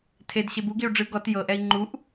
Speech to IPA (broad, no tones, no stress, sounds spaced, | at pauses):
tʰ e d ɕ e b u ɡ i u̯ ɖ͡ʐ ɯ ɡ ɔ t j ɤ ʔ ɛ i̯ ŋ͡ǃ u ʔ